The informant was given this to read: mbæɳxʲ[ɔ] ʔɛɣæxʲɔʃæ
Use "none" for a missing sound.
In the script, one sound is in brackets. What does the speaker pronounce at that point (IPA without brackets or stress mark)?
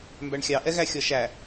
ɑ